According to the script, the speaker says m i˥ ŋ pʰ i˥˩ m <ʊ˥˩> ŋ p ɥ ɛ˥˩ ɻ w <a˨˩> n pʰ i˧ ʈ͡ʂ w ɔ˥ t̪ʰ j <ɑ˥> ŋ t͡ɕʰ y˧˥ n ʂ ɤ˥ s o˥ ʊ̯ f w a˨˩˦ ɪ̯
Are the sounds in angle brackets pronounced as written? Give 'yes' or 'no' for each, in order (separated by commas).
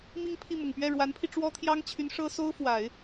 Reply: no, no, yes